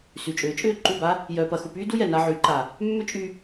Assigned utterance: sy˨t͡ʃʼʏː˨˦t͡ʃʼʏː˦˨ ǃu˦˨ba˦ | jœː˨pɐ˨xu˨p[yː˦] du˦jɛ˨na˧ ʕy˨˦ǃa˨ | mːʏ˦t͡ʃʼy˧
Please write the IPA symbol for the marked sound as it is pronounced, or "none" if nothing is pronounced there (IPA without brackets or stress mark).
yː˦